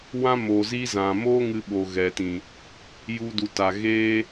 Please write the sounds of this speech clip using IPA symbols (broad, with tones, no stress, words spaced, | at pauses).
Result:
wã˦mo˨zi˦zã˨ moː˦ŋɨ˧ɓoː˨ ɣɛ˨tĩ˨ | ju˧du˨ta˨ ɣeː˦